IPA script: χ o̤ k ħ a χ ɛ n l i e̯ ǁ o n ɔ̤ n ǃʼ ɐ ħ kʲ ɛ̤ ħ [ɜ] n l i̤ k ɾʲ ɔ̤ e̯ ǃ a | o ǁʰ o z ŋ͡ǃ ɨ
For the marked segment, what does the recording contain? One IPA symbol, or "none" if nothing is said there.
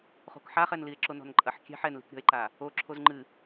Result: ɛ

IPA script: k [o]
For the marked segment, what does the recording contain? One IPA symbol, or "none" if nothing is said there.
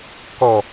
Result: ɔ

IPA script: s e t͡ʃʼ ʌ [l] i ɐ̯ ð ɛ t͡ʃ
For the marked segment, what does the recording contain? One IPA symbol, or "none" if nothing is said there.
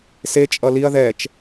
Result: l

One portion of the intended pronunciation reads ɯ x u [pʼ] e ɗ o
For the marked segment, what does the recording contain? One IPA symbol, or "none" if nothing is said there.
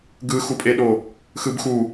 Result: pʼ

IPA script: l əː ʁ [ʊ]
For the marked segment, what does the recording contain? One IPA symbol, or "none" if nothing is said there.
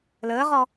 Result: ɔ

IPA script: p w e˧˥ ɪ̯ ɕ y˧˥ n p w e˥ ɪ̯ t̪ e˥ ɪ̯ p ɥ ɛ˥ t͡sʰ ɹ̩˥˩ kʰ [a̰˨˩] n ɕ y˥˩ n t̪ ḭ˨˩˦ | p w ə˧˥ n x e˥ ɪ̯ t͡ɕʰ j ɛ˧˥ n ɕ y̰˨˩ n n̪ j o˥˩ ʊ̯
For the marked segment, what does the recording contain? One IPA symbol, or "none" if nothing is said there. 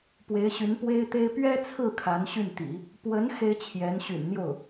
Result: a˧˥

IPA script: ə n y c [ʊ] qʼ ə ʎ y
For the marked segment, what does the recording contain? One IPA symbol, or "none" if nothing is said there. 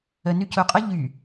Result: ʊ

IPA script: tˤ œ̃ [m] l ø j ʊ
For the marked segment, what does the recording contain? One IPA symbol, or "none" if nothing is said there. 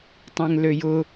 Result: ŋ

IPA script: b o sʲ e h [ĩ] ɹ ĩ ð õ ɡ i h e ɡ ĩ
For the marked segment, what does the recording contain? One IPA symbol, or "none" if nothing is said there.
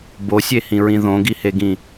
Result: ĩ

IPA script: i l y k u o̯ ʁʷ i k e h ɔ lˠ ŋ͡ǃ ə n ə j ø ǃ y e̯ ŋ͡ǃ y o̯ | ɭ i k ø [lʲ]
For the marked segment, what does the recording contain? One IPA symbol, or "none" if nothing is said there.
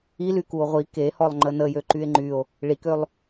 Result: lˠ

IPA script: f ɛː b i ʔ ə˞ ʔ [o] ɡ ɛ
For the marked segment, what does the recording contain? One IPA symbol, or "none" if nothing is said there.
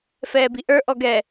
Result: ɔ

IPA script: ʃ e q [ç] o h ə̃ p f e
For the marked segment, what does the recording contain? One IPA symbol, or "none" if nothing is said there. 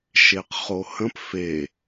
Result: χ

